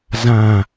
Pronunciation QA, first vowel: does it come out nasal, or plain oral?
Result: nasal